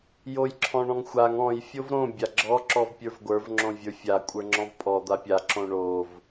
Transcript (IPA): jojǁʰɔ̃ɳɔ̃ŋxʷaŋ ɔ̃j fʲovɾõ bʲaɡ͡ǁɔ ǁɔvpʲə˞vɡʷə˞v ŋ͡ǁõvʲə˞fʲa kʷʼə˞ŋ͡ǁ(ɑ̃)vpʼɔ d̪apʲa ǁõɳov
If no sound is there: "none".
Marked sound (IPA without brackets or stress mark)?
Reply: ɔ̃